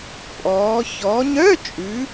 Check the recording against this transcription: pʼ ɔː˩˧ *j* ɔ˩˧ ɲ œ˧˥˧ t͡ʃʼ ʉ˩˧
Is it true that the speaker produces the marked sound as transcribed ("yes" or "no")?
no